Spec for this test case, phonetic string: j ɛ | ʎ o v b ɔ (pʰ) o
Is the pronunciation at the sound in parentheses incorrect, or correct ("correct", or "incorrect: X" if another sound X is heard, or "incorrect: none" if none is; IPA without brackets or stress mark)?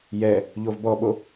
incorrect: ɓ